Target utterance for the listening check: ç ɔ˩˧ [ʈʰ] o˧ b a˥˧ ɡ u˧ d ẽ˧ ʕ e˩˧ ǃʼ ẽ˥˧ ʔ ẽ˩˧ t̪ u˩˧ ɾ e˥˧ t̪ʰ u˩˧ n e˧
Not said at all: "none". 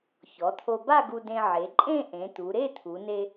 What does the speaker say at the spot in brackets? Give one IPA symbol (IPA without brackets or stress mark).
t̪ʰ